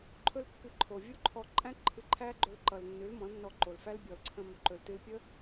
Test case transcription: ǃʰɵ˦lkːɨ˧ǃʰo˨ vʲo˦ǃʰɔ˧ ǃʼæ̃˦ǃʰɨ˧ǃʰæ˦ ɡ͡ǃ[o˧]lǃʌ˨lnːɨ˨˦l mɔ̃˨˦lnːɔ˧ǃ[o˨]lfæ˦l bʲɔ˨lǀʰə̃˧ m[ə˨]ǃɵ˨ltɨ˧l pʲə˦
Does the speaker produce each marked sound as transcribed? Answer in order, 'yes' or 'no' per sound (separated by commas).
no, yes, no